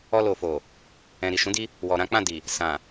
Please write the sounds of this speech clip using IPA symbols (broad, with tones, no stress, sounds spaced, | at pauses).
ɔ˧ l o˨ f o˨ | ɛ̃˨ ɾ i˨ ʃ ũ˨˦ d i˧ | w ɔ˨ ɾ ã˨˦ k͡p ã˦˨ d i˨ | s ã˨